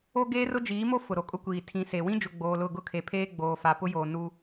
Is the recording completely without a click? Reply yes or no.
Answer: yes